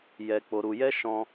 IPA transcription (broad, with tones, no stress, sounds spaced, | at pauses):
j ɛ˧ k͡p o˧ ɾ u˧ j ɛ˦ ʃ ɔ̃˧